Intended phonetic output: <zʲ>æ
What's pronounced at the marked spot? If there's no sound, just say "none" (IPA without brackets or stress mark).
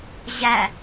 ʑ